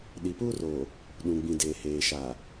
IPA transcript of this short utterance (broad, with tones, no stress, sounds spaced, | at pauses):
ɗ i˨ p u˦ r o˨ | ɗ ũ˨ ɡ͡b ĩ˨ d eː˨ h eː˨ ʃ a˨